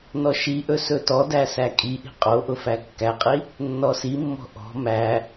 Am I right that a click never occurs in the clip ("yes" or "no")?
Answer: yes